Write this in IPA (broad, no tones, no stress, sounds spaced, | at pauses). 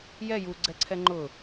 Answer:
j ɛ j u ɡ͡ǀ ɛ ǀʰ ɛ ŋ͡ǃ ʊ